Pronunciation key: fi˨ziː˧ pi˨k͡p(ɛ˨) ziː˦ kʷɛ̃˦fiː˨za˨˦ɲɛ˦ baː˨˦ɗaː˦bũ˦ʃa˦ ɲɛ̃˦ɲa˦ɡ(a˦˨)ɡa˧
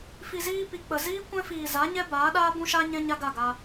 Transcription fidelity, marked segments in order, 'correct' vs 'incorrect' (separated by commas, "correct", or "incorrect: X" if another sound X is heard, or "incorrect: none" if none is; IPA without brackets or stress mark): incorrect: ə˨, correct